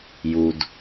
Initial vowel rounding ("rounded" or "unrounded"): rounded